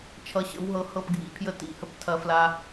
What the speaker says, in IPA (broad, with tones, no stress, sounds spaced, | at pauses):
t͡ʃʰ ʌ˧ ɕ ə̰˨˦ w ɦ ɤ˧ h ɤ˦˨ p ɡʱ ḭ˧ pʰ j ə˦ t ḭ˧ h ə˧ p tʰ ɐ˧ f l a˧